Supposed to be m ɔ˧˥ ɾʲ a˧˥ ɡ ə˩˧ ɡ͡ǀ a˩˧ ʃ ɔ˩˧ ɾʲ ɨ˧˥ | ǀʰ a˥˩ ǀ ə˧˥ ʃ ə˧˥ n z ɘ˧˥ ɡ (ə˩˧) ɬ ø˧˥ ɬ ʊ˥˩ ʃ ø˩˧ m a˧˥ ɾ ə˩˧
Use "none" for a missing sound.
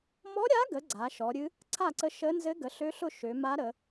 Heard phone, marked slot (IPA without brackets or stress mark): ə˩˧